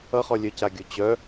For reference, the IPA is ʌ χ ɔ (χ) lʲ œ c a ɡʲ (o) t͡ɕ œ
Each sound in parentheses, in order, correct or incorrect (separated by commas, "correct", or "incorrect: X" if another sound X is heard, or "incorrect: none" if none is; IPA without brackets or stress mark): incorrect: none, correct